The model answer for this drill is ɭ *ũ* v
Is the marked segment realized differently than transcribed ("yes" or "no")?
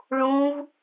no